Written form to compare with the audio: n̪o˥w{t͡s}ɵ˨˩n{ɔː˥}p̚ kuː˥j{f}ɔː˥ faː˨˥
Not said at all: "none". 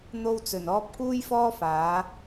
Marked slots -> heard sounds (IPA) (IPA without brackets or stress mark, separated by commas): t͡s, ɔː˥, f